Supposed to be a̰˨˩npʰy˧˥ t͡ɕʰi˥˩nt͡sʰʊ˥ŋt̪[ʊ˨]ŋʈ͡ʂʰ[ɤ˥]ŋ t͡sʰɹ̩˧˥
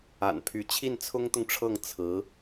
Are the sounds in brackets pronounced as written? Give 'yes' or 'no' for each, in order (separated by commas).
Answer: yes, no